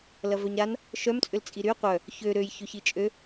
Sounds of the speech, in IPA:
l ɐ v œ ɲ ɾ a n | ʃ œ m t͡sʼ ʏ l t͡sʼ i ɾ y qʷ œ | ç ø ɾ ø j ç ø ç i t͡ʃʼ ø

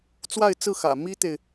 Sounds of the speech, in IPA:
t͡s w a˥˧ ɪ̯ t͡s ɹ̩˥˩ x ä̰˨˩ m i˥ t̪ e˨ ɪ̯

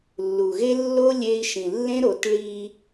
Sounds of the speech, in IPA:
lː u˨ ɣ e˦ lː o˦ lʲ e˦ i̯ ʃ ĩ˨ lː ẽ˦ ɾ o˨˦ t ɭ i˦

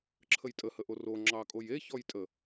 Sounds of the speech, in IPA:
ǁʰ ə j tʼ ə h ə ʔ o r o ŋ͡ǁ ɑ kʼ o j e ç ɔ j tʼ ə

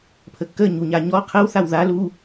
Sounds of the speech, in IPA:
pʰ ə kː ə ɲ u ɲ a ɲ ɔ qʰ ə w θ a w ð a l u

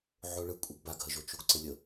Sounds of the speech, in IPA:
ʕ o ɭ ɯ kʷʼ ɛ ɡ b a ɡ ɦ ə ʒ o t͡ʃ u ɡ ǀ ə lʲ ə

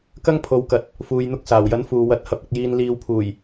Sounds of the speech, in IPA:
k ɐ˥ ŋ pʰ o˨ w k ɐ˨ t̚ | f uː˨ j n̪ ʊ˧ k̚ s aː˨˩ w j ɐ˨˥ n f uː˨ w ɐ˧ t̚ h ɐ˨˥ p̚ ɐ˨ k̚ j iː˨ n l iː˨ w pʰ uː˨˩ j

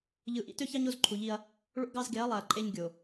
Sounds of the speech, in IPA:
ʎ ɯ˨ ʔ ḭ˦ t ø˦ ç ɑ˦ ɲ o˦ z ǃʰ u˨ ʎ i˦ ɐ̯ | ɭ o̰˦ ɡ ɑ˦ z ɡ e˨˦ ɐ̯ lˠ æ˨ ɐ̯ ǃʼ e˦ ɲ ɡʲ o˨

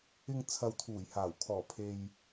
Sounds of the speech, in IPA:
ɪ˨ ŋ t͡sʰ ɐ˨ w t̪ʰ uː˨˩ j h aː˨˩ w kʰ ɔː˨˩ pʰ e˨ j

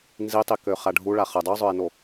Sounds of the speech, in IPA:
n z i tˤ i k ø χ a ɖʱ u ɭ a χ ə dˤ y zˤ œ ɪ̯ n o

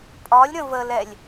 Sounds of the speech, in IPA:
pʼ ɒ lʲ ɾ ə̃ v ə l ɛ lʲ

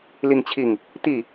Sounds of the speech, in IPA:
l i˥˧ ŋ t͡ɕʰ i˥˩ ŋ | t̪ i˥˩

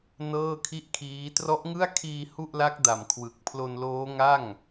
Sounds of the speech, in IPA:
n ɤː˥˩ kʰ i˥˩ ʔ kʰ iː˦˥ t r ɔ˦˥ ʔ ŋ ɯ˥˩ a̯ kʰ iː˧ h u˥˩ ʔ l a˦˥ k̚ d a˨˩ m kʰ w ɯ˨˩ k̚ pʰ l o˧ n l oː˦˥ ŋ a˥˩ ŋ

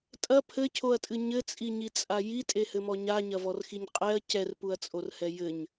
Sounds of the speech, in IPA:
tʼ ɐ pʰ ɘ cʰ o ɐ̯ tʼ ɨ ɲ ɘ t͡sʼ i ɲ i t͡sʼ a j i tʼ e h ɘ m ɔ ɲ a ɲ ɐ v ɔ r x i ɲ qʼ ɛ ɐ̯ c ɛ r p u ɐ̯ t͡sʼ o r h ɛ j ɘ ɲ

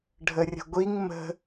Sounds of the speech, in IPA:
ɖʱ ə rʲ ə̤ ɡʷ i ŋ m ə̤

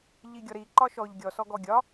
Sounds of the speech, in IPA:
ʎ i ɡʲ ɔ ɾ i ǃ ɒ ʃ ɔ ʎ ɡʲ ɔ s ɔ ɡ ɔ ɡʲ ɒ

